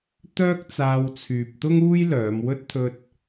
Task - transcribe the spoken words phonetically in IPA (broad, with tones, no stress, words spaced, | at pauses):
t̪œː˥k̚t͡saː˧wt͡sʰyː˨p̚ t̪ʊ˥ŋuː˥jlœː˨˧mwɵ˥t̚ t̪ʰɵ˥t̚